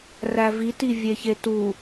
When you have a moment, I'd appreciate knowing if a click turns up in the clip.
no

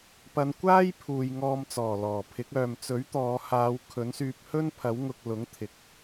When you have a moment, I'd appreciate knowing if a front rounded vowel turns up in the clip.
yes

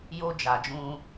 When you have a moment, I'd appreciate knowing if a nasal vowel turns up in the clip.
yes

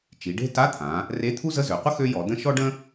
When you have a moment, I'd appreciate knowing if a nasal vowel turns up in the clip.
yes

